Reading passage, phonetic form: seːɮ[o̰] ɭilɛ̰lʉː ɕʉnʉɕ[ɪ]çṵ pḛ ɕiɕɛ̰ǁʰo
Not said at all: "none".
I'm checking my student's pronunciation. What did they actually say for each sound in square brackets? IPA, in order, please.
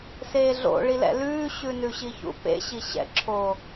o̰, i

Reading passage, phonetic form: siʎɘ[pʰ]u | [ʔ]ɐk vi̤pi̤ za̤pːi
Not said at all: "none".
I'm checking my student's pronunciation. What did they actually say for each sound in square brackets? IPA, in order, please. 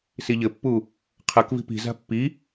pː, qʰ

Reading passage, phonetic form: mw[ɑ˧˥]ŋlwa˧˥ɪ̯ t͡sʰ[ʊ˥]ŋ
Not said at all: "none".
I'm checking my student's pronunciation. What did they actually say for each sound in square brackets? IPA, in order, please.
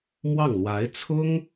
ɑ˥˩, ʊ˥

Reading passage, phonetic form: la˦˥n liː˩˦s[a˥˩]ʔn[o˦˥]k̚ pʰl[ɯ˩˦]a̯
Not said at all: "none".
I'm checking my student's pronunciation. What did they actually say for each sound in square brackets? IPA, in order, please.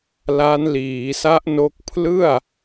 a˦˥, o˦˥, ɯ˥˩

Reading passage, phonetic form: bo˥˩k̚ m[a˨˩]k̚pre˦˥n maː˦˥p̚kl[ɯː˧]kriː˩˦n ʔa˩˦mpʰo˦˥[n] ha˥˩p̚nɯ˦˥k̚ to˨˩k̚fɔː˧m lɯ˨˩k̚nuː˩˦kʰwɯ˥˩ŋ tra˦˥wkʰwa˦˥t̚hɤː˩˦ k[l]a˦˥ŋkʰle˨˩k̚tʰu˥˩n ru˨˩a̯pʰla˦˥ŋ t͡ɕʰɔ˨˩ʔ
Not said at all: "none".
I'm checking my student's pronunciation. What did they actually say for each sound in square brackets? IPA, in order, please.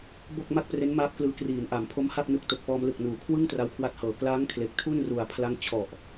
a˥˩, ɯː˧, m, l

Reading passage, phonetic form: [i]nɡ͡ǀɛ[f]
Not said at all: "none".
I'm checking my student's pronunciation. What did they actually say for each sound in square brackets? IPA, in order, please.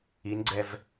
i, v

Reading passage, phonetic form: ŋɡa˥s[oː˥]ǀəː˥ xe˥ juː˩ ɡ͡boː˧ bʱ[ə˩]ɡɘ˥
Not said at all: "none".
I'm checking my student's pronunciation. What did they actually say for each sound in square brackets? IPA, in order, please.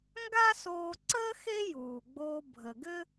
oː˧, ə˩

